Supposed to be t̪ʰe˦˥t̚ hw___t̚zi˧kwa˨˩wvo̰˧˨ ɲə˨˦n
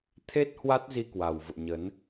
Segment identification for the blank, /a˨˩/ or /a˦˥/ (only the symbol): a˦˥